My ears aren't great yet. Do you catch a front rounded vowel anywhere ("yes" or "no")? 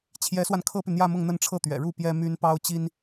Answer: yes